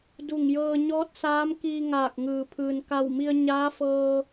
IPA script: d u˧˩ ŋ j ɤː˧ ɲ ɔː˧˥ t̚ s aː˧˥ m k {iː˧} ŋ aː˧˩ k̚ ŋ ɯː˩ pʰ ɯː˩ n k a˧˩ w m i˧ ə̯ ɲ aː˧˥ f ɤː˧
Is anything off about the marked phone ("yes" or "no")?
no